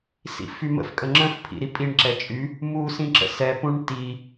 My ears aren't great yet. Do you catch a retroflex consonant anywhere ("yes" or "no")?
yes